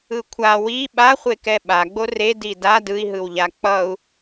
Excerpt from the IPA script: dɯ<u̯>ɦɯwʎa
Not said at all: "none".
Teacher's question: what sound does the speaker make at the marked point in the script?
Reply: i̯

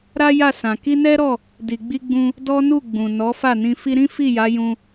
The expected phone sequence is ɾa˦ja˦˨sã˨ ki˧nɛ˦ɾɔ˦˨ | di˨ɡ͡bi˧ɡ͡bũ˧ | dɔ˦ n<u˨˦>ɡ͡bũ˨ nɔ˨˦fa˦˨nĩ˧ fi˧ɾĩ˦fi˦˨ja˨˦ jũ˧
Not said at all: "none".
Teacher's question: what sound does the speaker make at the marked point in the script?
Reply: u˦˨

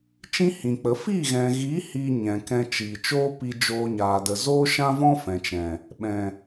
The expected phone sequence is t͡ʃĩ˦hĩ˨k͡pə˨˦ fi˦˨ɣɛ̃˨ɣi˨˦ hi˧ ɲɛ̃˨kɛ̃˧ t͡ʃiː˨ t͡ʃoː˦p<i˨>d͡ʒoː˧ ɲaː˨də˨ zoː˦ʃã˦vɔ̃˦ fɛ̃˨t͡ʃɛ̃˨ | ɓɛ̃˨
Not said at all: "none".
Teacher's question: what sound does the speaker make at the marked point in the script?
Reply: i˧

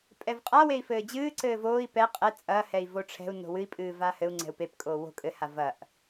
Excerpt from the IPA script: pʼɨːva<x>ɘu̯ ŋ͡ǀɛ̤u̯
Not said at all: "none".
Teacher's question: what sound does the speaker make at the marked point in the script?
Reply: h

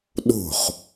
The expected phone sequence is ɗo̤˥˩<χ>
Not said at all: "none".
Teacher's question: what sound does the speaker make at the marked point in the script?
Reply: χ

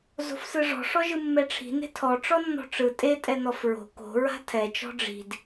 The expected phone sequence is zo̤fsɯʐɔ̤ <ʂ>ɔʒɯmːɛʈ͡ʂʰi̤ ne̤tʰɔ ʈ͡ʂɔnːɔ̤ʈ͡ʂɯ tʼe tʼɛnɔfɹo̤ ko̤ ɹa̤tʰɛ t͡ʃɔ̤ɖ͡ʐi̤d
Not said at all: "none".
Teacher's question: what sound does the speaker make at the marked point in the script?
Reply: ʂ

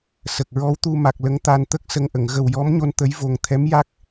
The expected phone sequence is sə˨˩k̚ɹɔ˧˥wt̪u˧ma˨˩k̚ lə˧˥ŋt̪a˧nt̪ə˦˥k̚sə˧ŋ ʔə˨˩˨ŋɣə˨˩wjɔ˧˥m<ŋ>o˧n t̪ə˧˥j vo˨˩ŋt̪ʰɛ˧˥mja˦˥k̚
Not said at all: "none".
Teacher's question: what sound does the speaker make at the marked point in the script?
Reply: ɲ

